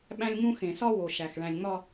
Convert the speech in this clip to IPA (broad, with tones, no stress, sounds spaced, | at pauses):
ɓ æ̃˦ lʲ ŋ ũ˦ x ẽ˨ s ɒ˦ w o˨ ʃ æ˨ x ɭ æ̃˨ lʲ ŋ͡m ɒ˦